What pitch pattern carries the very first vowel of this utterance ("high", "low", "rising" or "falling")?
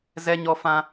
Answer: high